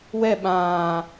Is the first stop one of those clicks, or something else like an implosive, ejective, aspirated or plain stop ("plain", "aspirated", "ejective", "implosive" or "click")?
implosive